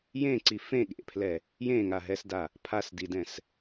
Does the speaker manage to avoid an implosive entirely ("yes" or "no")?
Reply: no